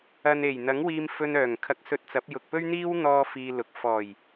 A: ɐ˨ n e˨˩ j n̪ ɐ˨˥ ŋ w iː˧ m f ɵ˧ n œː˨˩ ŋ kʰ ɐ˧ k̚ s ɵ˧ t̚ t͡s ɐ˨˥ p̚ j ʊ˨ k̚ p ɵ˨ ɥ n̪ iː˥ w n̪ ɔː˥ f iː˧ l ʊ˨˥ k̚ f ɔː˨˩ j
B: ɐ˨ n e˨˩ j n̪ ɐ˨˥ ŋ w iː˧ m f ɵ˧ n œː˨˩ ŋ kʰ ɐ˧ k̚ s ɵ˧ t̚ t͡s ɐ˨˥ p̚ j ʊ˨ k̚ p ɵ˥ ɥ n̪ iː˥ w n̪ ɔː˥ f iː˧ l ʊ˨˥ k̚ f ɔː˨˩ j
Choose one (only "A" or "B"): B